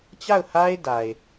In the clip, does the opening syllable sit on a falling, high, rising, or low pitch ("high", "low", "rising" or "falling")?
falling